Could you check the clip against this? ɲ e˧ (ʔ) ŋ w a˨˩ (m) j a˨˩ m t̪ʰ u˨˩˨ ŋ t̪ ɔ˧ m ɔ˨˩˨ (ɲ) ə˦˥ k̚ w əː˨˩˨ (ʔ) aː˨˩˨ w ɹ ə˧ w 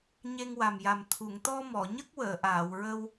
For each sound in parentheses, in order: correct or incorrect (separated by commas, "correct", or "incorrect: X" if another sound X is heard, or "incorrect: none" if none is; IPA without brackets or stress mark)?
incorrect: none, correct, correct, correct